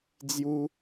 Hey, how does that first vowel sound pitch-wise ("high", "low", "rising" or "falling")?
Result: high